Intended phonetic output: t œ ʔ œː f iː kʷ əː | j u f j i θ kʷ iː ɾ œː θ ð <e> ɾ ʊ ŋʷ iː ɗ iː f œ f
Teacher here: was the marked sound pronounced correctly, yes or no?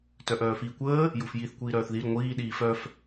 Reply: no